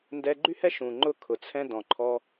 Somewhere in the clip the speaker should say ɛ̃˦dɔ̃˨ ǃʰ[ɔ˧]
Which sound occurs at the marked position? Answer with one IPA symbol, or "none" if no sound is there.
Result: ɔ˧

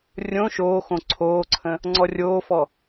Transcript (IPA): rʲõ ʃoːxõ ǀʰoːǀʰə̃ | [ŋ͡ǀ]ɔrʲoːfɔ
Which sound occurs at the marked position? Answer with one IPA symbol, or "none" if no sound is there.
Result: ŋ͡ǀ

